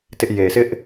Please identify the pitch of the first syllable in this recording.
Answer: high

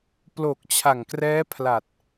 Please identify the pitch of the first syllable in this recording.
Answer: low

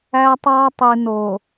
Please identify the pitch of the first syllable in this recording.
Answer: high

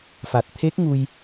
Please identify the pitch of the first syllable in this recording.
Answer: low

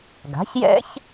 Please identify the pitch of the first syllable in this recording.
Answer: rising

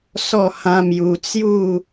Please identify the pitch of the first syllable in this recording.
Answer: falling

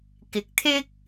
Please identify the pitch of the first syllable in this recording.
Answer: low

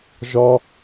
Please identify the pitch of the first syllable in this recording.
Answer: high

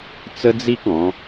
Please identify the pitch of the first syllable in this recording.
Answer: high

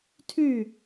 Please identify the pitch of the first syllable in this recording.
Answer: falling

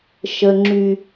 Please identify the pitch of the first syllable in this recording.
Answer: low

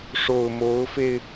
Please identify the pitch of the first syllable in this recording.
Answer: low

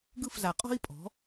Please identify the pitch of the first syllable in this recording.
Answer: falling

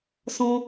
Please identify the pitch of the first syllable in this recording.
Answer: high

